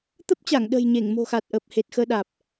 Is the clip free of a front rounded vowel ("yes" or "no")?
yes